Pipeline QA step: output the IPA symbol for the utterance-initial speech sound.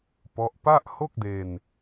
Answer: p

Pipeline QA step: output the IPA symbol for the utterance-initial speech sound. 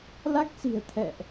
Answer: l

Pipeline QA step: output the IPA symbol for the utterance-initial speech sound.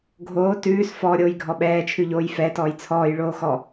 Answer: ɡʱ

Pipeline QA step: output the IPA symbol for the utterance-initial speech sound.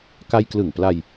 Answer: k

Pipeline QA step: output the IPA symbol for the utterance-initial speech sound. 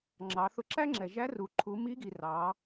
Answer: ŋ͡ǁ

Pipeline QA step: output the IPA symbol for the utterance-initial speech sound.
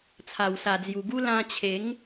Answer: t͡sʰ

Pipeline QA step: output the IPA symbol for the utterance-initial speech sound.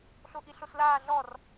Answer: ɬ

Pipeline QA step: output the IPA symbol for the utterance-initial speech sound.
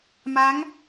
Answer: m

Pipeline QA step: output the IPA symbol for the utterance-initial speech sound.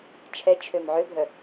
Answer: t͡ʃʰ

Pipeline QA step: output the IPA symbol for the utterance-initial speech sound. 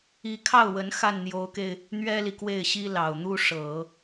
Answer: i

